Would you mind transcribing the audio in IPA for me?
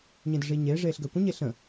ɲ ẽ d ə ʐ iː ɲ eː ʐ eː ɬ ɡ əː kʷ ə̃ ɲ e ɬ ə̃

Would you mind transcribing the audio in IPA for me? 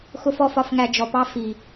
x ʊ˦ f ɔ˦ f ɒ˧ f ŋ æ˧ d͡ʒ ɔ˨ p ɑ˦ f i˨

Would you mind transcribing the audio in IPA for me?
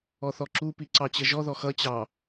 ɔ θ ɔ ǁ u p i ǀ ɑ t͡ɕ ə ʒ ɔ ð ɔ x ʌ t͡ɕ ɑ

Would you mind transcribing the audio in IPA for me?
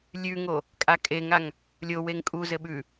lʲ ʉ ŋ o | kʼ a kʼ e ŋ a ŋ | lʲ o w e ŋ kʼ u z ɘ ɓ ʉ

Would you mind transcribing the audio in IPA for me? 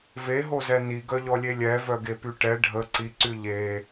v e ɦ o z ɛ n i ɡ œ ʎ ɔ lʲ e lʲ ɛ v œ ɡ e p y ʈ ɛ ɖʱ ə ǀ i ǀ y ʎ e

